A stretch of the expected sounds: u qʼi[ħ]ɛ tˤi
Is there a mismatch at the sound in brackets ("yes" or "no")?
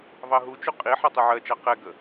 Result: no